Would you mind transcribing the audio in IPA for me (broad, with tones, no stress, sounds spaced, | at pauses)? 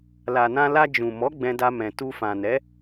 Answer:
l a˨ n ã˧ l a˧ d͡ʒ ũ˨ m ɔ˨˦ ɡ͡b ɛ̃˧ d a˧ m ɛ̃˨ t u˧ f ã˨ n ɛ˨˦